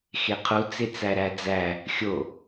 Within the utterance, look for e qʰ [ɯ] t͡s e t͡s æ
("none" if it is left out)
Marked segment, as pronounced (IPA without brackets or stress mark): u